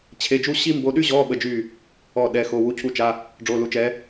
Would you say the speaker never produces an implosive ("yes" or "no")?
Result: no